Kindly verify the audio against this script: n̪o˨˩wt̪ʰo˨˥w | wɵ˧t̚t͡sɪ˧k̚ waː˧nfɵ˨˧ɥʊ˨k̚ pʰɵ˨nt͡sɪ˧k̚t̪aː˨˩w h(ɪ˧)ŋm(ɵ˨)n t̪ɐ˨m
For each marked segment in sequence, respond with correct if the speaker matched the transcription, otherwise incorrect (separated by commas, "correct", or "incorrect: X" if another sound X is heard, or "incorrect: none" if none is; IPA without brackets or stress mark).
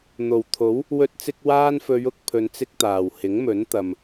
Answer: incorrect: ɪ˨˥, incorrect: ɵ˨˥